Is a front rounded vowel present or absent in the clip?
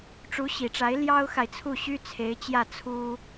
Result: present